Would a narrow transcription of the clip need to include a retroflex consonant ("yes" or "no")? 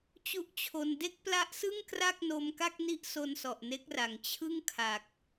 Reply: no